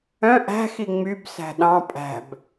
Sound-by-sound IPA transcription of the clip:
œ̃ ʔæ̤xi ŋ͡myb sæ̤ɗɑ̃ pʼæ̤b

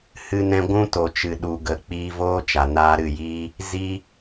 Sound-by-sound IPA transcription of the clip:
hɨ˦nɛ̃˦ ɡʷũ˦to˨ t͡ʃɨ˨ɗu˨ ɡə˨ k͡piː˧voː˦t͡ʃa˨ naː˧ɾɨ˦˨jiː˦ | zi˦

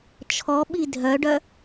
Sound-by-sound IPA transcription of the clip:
t͡ʃʰɔɓi dʱœɖœ

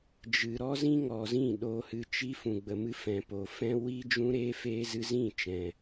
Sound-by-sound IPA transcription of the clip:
d͡ʒɨ˨ ɾɔ˦zĩ˦ŋɔ˨zĩ˦˨ ɗo˧hɨ˧t͡ʃi˦ fũ˨ɡ͡bə˨mɨ˧fɛ̃˨ po˨fɛ̃˦ wi˦ d͡ʒũ˦ɾeː˦ feː˦zɨ˦ zĩ˦˨t͡ʃɛ̃˨

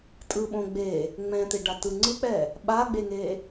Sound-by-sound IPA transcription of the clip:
tʼɯɓõ ɡ͡be | ŋ͡mɛ̃t̪eɖatɯ ŋ͡ǀɯk͡pɛ | ɓaɡ͡beŋe

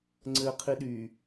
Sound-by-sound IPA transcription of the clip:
ŋ͡ǀɘːqʰiɗy

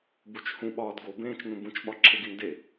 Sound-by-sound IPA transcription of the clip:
but͡ʃhũ ɓɒːdɡo bẽːt͡ʃnũbũt͡ʃ ɓɒǁʰeɡinde

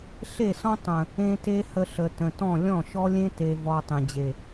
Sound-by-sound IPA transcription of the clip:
ɬe˦˨sɔ̃˦ tˤə̃˨ | ẽ˧ te˦hə˧ɬə˨ tə̃˨tɔ̃˦˨ lʲɔ̃˦˨ʃɔ˦lʲẽ˦ te˨vɔ˨ tˤẽ˨ d͡ʑe˨

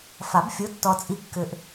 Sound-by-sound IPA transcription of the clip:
fa˨˩˦bfʲo˨˦tːɔ˨ t͡sʼi˨kːʏ˨ʔ

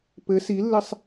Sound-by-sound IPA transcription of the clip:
pɘ silːɘsˤ

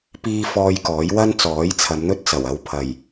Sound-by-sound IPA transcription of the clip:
piː˧ fɔː˧jkɔː˨˥jwɐ˥n t͡sɔː˨˥jt͡sʰɐ˨˧mn̪ɵ˥t̚t͡sɐ˨˩w ɐ˧wpʰɐ˨˩j

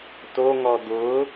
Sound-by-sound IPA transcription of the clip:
toŋɔ d̪ʊ

